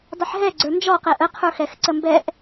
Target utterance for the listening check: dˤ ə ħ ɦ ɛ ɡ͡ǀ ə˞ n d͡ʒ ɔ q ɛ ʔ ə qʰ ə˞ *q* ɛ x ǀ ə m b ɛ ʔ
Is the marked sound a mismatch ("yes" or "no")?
yes